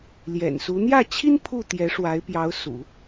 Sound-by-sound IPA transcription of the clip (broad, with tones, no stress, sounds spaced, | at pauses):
l j ɛ̰˨˩ n s u˧˥ n̪ j ä˥˩ t͡ɕʰ i˥ n pʰ u˥˩ t̪ j ɛ˧˥ ʂ w a˧˥ ɪ̯ p j ɑ˧˥ ʊ̯ s ṵ˨˩˦